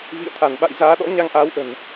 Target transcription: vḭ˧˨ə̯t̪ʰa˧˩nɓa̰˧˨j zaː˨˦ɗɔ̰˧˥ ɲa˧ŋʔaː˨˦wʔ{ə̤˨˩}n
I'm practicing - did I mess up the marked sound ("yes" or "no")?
no